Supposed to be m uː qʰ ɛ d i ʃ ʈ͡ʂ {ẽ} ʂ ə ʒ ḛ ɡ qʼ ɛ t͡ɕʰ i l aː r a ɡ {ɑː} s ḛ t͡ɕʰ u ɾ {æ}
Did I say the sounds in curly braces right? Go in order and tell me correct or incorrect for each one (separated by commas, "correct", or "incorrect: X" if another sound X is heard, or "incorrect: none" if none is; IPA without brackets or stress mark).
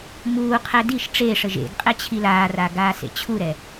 incorrect: e, incorrect: aː, incorrect: ɛ